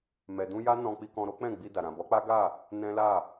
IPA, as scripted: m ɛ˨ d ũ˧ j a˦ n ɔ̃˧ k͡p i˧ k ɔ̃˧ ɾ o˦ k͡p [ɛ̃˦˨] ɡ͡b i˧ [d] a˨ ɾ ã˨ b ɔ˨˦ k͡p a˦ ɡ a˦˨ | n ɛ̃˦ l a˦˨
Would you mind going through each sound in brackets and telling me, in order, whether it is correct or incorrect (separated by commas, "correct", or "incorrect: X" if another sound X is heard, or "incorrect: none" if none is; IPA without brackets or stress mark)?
correct, correct